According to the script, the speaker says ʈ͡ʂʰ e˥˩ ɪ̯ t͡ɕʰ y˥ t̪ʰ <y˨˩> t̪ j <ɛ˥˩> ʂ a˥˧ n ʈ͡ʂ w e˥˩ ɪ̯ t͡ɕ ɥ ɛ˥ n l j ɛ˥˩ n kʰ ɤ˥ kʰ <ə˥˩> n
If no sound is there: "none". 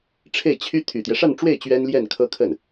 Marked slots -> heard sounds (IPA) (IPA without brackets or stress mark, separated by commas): y˨˩, ɛ˦, ə˥˩